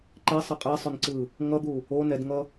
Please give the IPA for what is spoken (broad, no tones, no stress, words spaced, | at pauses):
ǃɛsˤʌ qʼɛsˤonǀɯ | ŋʌd̪u | o nɛdŋʌ